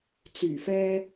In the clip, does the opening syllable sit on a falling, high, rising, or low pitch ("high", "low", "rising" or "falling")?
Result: low